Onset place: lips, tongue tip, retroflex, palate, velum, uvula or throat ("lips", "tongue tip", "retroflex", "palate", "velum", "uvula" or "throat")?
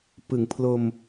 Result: lips